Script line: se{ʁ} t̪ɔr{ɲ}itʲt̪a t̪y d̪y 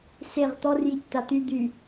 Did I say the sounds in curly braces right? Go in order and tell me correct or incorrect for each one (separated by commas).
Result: correct, incorrect